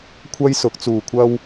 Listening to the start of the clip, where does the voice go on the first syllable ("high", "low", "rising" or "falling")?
high